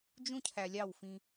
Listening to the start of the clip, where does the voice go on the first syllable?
high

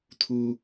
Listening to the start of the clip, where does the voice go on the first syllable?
high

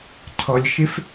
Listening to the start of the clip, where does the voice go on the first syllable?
low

